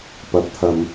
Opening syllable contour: low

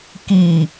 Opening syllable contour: low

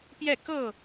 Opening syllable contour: falling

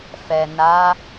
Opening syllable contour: low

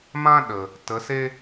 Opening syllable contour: high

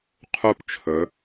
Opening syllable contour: falling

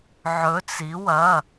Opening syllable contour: rising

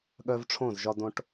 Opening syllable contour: high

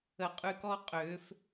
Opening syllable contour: high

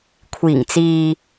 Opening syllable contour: low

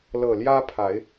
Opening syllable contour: low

